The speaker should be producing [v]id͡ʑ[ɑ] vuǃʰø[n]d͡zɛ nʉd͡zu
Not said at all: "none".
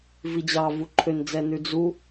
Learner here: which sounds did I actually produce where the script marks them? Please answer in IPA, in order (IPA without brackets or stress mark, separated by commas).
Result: v, ɑ, n